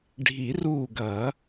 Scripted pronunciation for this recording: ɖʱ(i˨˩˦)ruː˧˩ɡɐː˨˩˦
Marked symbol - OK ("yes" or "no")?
yes